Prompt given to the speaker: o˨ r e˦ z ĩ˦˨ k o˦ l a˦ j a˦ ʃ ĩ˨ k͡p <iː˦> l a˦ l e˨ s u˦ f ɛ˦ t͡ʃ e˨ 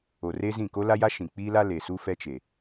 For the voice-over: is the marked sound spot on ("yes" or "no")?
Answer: yes